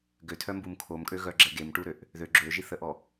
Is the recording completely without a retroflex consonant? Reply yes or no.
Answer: no